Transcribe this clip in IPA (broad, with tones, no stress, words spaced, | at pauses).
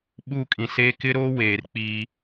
ɓu˦˨kʼĩ˨seː˦ kɪ˦ɾoː˦ weː˨rk͡piː˦